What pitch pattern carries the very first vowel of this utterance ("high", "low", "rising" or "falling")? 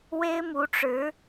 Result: high